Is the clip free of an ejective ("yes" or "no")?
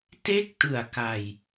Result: yes